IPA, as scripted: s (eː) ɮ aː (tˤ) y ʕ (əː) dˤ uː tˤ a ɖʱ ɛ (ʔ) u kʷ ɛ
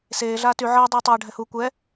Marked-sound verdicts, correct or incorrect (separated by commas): correct, incorrect, correct, incorrect